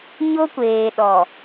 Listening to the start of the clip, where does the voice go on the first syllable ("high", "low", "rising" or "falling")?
high